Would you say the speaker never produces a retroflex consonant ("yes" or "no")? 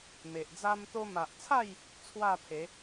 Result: yes